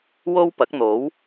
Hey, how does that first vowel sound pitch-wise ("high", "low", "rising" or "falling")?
high